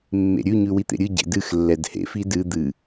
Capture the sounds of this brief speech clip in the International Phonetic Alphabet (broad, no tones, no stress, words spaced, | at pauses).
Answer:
mːḛɾʲʉ ɲʉwit̪ḛɾʲɨ ɟḛdɨx lːɛdhḛf idɨ d̪ɨ